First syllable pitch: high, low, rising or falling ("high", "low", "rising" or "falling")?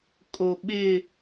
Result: low